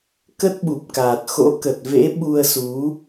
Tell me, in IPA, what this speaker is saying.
k ə˦˥ t̚ ɓ u˨˩ p̚ k aː˨˩ t̚ x o̰˧˥ k ə˨˩ t̚ v ḛ˧˥ ɓ u˧ ə̯ s u˨˦

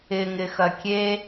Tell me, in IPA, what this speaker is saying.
ɪ ŋ ɪ x ɐ kʲ e

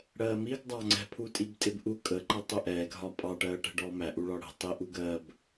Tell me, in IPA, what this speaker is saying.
ɽ ɜː m i ɡ dˤ ɑ ŋ͡ǀ ɛ̤ pʰ u tʼ i b tʼ ɪ b ʔ u kʼ ə ǃ ʌ tˤ ʊ ʔ ɛː ɡ ɦ ɒ pʼ ɑ ʈ ɜː ʈ ɛ̤ ɖ ɔː m æ ʔ u ɭ ɒ ɽ ə̤ tˤ i ʔ u ɡ ɜ b

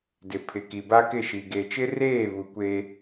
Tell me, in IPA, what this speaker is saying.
d ɪ˨ pʰ ɪ˨ k i˨ b a˦ k ɪ˦˨ ʃ i˨ ɡ e˨ t͡ʃ ɪ˦ r eː˦˨ β u˨ kʷ e˦

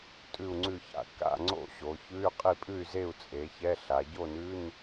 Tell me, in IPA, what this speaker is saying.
tʼ ʉ˥˨ u̯ ŋ͡ǀ ʉ˥˨ ç a̰˥˨ k a̰˥˨ ŋ͡ǀ o̰˥˨ ɕ o˩˧ ç ʉ˧˥˧ y̯ qʼ i˥˨ pʼ ʉ˥˨ y̯ z e˥˨ u̯ t͡sʼ e˩˧ ç ɛ˧˥˧ ɬ a˩˧ ɟ o˥˨ n ʉ˧˥˧ n

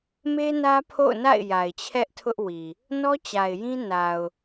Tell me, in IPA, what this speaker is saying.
m e˦ n ä˦ pʰ o̰˦˨ ʊ̯ n a̰˦˨ ɪ̯ j a˨ ɪ̯ t͡ɕʰ ɛ˦ ʔ tʰ ʊ˦ ʔ w i˨ | n ɔ˦ t͡ɕ a˨ ɪ̯ j ĩ˦ n a˨ ʊ̯

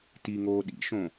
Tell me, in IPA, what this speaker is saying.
t i ŋ oː ɗ ḭ ʃ õ

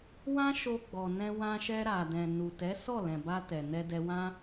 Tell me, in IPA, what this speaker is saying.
w ã˦ ʃ o˧ ɡ͡b ɔ˨ n ɛ̃˧ w ã˧ ʃ ɛ˧ ɾ a˨ d ɛ̃˨ n u˨ t ɛ˨˦ s ɔ˦˨ l ɛ̃˨ b a˧ t ɛ˨ n ɛ˧ d ɛ˧ w ã˦

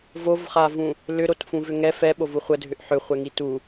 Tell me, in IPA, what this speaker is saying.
v o v χ a v ũ | l ʏ ɾ o t f ũ v ʏ ŋ ɛ f ɛ ɓ o v u χʷ ə dʱ ʏ ʔ ħ ʏ χʷ ɛ ŋ i t u

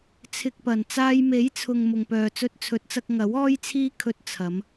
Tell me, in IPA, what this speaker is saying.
t͡sʰ ɪ˧ k̚ p ɐ˨˩ n t͡s aː˧ j m e˨˥ j t͡sʰ ʊ˨ ŋ m ʊ˨ ŋ p œː˨ t͡s ɵ˧ t̚ t͡sʰ ɵ˨˥ t̚ t͡s ɐ˧ k̚ ŋ ɐ˨˥ w ɔː˥ j t͡sʰ iː˥ kʰ ɵ˧ t̚ t͡sʰ ɐ˨˧ m

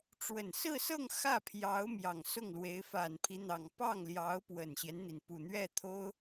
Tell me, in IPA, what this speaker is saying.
ʈ͡ʂ w ə˨˩ n s ɹ̩˥˧ s ɤ˥˧ ŋ x ä˥˩ pʰ j ɑ˧˥ ʊ̯ m j ɑ˨˩ ŋ s ʊ˥˩ ŋ l w e˧˥ ɪ̯ f a˨˩ n pʰ i˦ n̪ ɑ˨˩ ŋ p ɑ˥˩ ŋ l j ɑ˧˥ ʊ̯ p w ə˨˩ n ɕ j ɛ˦ n n̪ i˩ n p u˨˩ n̪ ɥ ɛ˥˩ t̪ʰ o˥ ʊ̯

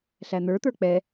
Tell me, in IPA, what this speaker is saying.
ɬ æ n̪ ə˞ t̪ ə˞ k͡p ɛ

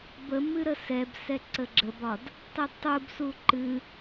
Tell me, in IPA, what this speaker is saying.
b ə m ɨ ɾ ə s ɛ b s ɛ ǀ ə ɡ͡ǁ ə b ɒ d | tˤ ə d tˤ u b s u ǃ ɨ

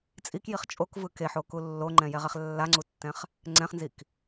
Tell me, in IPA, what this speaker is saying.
t͡sʼ i k j i χ t͡ʃʼ o k v ɯ k e ħ o k u lː o ŋ͡ǃ ɛ̃ j ɛ ʁ ɛ χ lː a ŋ͡ǀ u tː ɛ̃ χ | ŋ͡ǀ ɛ̃ χ n z i k

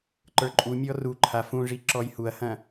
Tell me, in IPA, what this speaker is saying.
ǃ ə˞ ǃʼ u mʲ ɔ r u ǃʰ a f ũ ʐ i ǁ ɔ j h u ɐ̯ h ɐ̃

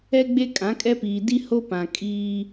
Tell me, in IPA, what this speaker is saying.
ɛ˦ ɡ͡b e˦ kʼ ã˨˦ kʼ ɛ˦ p iː˨ d i˦ h o˦ p ã˨ kʼ iː˦

